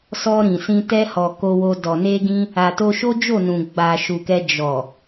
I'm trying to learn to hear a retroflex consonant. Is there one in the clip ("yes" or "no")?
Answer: no